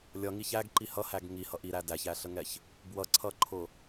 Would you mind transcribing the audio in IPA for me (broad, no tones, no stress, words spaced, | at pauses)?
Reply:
lʲʌŋi çæɡǃi hʌhæɡ ŋihʌ ʔiɾæ dæçæɬəŋɛç | bwʌǀʰʌǃʰʊ